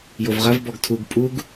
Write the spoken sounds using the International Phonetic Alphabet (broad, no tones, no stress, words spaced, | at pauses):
jovʁɐv bɔɡtʰuɡ pʼuɡ